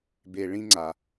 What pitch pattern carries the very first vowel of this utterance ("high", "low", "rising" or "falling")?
low